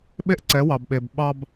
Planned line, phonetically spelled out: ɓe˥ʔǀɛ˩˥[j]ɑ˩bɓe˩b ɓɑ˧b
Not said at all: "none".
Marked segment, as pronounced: w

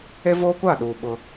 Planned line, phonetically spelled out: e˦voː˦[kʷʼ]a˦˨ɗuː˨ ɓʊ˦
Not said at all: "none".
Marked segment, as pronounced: kʷ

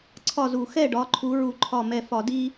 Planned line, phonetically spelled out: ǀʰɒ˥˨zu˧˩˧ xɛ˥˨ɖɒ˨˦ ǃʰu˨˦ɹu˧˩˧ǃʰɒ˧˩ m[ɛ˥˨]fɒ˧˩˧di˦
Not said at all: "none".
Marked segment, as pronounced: ɛ˧˩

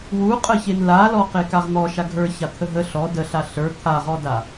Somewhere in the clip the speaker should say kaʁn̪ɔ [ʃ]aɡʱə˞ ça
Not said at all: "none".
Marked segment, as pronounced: ʃ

